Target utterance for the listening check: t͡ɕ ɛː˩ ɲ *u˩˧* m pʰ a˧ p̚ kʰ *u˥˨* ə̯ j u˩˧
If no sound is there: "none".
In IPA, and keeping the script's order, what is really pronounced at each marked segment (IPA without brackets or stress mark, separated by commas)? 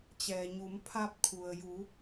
u˩˧, u˩